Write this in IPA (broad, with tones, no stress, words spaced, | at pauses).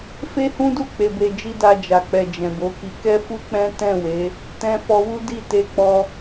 fe˦hũ˦du˦˨ k͡pe˨be˨d͡ʒi˧ da˧d͡ʒa˨k͡pɛ˨ d͡ʒɛ̃˨bo˨˦ki˧ kɛ˦fu˦k͡pɛ̃˦ tɛ̃˦˨we˨˦ | tɛ̃˧fɔ˧wu˦di˦˨ te˧k͡pɔ˧